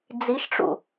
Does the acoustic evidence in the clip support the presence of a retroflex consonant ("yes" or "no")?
yes